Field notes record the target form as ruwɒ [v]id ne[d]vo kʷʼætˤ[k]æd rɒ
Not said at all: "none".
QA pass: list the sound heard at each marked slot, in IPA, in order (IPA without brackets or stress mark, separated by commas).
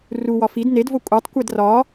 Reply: f, d, kʷ